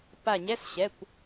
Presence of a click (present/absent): absent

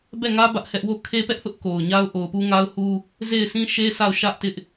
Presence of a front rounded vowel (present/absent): absent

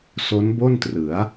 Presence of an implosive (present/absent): absent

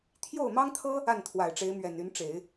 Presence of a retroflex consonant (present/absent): present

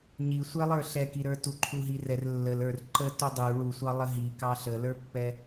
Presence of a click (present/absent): present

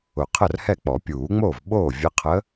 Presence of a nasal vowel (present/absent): absent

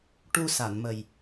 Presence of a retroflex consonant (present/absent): present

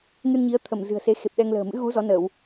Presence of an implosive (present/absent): present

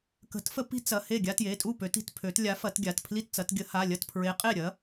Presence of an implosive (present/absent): absent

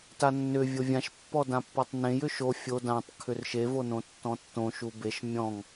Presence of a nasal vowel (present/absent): present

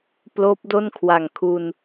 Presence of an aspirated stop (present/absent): present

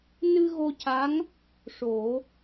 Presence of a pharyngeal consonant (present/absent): absent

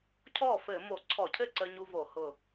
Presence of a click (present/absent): present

